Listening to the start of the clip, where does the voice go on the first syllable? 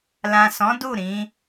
low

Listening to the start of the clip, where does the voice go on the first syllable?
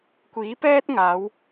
rising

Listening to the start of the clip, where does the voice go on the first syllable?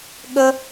high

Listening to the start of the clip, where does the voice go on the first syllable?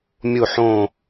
falling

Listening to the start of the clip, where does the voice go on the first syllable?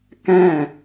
falling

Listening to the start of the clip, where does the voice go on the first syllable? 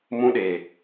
high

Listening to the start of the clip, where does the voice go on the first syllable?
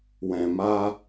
low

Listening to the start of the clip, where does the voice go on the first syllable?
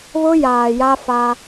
high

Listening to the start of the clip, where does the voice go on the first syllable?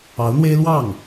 rising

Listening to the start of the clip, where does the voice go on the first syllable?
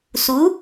rising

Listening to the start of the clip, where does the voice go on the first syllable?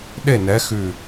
falling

